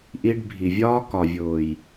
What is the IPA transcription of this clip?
ʔ i˧ ɖ bʱ i˨ vʲ ɒː˦ k ɒ˨ vʲ ʊː˨ j

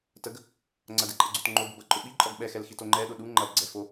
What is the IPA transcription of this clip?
t ə ɡ | ŋ͡ǀ ɐ d ɛ ǃʼ ɐ ɡ͡ǀ o t ŋ͡ǃ o b ə b ɐ ǃʼ ʊ ɓ i ǃʼ ɔ ɡ ɓ ɛ x ɛ l x i t o ŋ͡ǃ ɛ ɗ ʊ ɗ u ŋ͡ǃ ɐ b ɡ͡ǀ ɛ f o

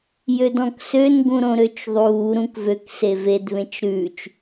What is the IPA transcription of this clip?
j ø d ɔ̃ k s ø n ɡ ũ ɾ õ ɾ ø t͡ʃ ðˤ uː ɾ ũ k v ø k s e v e d β ẽ t͡ʃ ɾ ʉː t͡ʃ

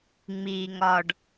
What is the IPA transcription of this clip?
ŋ͡m iː˩ ŋ ɒ˩ ɖ

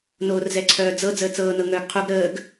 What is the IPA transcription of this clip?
n oː r z ɛ ǀʰ œː d͡z ɤ d͡z əː t͡s ɤː n ɤ ŋ œː ɡ qʰ u ɡ ɾ əː ɡ

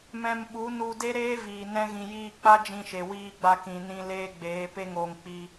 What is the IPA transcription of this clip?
m ɛ̃˧ m ɓ u˨˦ n u˧ d e˦ ɾ eː˦ v iː˨ n ɛ̃˧ ɣ ĩ˨ j iː˧ k͡p a˦ d͡ʒ ĩ˧ ʃ e˨ w iː˧ ɡ͡b a˧ k ĩ˨ n ĩ˧ l eː˦ ɡ͡b eː˨˦ p e˦ ŋ oː˧ ŋ k͡p i˧

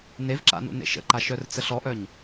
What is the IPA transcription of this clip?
n e v ǁ a̰ n ṵ n ḛ ʃ ə̰ ǃ a ʃ œ r t͡s ə ɬ ɔ ʔ œ ɲ

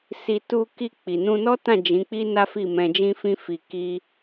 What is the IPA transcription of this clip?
s i˧ t u˧ k i˧ k͡p i˨ n ũ˧ n ɔ˦ t ã˦˨ d͡ʒ ĩ˨˦ k͡p i˦ n a˦ f i˦˨ m ɛ̃˧ d͡ʒ ĩ˦ f ĩ˦ f i˧ k i˦

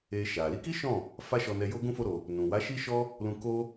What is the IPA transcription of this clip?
e˧ ʃ a˨ l i˧ k i˦ ʃ ɔ̃˦˨ | f a˦ ʃ ɔ˧ n ɛ˧ j o˦ ɡ ũ˦ f o˦ ɾ o˧ | n ũ˨ w a˨˦ ʃ i˦ ʃ ɔ˦ | l ũ˧ k o˦

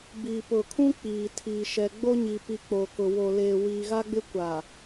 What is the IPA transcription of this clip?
b i˨ p ʊ˨ kʰ ũ˦ k͡p iː˨ tʰ iː˨ ʃ ɛ˨ ɡ͡b o˦ ɲ i˨ p i˨ k͡p o˨ k ʊ˨ w o˨ l eː˨ w iː˨ ɣ a˦ ɡ͡b ɪ˦ kʷ a˨

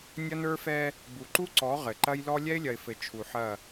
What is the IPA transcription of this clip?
nʲ ɐ˦ n ə˞˦ f ɛ˦ | b u˨ ǃ u˦ ǀ ɔ˨˦ ʁ ɘ˨ ǃ ɐ˦ j l ɔ˦ lʲ ɛ˦ ɪ̯ lʲ ɐ˨ ɪ̯ f ɘ˨ t͡ʃʰ u˨ ħ ɐ˦˨

